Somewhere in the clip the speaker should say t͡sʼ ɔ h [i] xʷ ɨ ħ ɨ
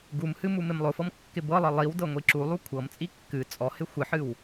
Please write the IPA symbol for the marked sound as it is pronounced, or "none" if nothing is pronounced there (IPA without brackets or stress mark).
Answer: ɪ